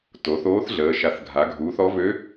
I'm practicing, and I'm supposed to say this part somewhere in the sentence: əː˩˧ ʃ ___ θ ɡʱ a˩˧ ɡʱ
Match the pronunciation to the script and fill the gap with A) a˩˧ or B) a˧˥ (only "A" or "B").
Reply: A